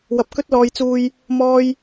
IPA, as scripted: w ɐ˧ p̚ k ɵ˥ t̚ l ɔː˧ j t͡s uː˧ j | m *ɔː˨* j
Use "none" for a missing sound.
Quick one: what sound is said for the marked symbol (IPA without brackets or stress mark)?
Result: ɔː˥